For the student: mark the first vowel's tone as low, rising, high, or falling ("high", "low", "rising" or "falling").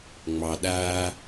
low